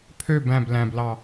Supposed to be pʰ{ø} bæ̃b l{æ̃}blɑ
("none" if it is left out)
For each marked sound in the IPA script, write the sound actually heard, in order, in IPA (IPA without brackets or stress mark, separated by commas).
ø, æ̃